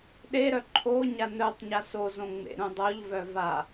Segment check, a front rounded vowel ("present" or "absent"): present